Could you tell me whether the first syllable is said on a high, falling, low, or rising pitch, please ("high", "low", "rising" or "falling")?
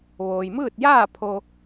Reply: low